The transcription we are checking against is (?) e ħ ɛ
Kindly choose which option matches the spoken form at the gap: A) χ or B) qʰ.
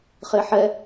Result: A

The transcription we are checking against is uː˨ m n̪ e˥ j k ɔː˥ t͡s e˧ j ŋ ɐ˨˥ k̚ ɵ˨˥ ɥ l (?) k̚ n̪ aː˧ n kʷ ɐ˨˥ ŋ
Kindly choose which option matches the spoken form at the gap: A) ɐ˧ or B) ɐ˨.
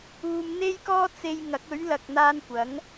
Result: B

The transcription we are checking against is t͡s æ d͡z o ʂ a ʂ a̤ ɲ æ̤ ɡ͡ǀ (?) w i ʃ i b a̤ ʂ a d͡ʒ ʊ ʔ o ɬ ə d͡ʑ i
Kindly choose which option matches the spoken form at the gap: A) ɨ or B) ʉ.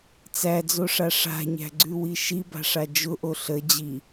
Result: B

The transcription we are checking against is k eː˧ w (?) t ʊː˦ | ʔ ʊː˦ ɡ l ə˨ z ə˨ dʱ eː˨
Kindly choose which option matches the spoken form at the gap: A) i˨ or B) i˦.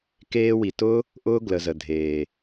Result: A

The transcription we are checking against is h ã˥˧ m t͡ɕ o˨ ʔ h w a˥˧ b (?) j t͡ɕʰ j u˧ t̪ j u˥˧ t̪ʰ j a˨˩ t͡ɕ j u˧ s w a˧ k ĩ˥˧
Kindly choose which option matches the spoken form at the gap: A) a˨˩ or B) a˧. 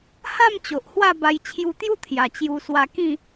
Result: B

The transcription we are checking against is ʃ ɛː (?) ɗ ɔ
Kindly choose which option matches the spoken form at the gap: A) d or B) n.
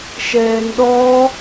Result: B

